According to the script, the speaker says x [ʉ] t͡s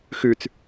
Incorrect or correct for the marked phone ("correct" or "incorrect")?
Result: correct